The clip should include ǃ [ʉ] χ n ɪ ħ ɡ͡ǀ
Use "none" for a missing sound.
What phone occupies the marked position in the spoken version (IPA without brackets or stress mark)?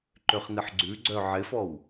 ø